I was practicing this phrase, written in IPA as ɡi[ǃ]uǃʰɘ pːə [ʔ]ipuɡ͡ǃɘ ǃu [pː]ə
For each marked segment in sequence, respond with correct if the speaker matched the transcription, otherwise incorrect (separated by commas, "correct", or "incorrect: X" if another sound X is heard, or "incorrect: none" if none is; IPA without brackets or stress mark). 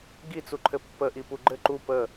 incorrect: t͡s, correct, incorrect: p